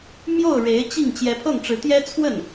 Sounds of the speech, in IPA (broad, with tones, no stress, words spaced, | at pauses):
mjo˥˩ʊ̯ ɻe˧˥ɪ̯t͡ɕi˥˩ŋ t͡ɕjɛ˧˥pʰɤ˥˩ŋʈ͡ʂɻ̩˧˥t̪jɛ˥ t͡sʰwə˥˩n